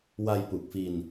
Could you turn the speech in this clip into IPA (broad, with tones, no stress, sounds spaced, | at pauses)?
w a˧ j p u˨˩ k̚ f i˧ n